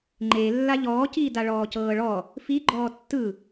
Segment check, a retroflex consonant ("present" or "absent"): present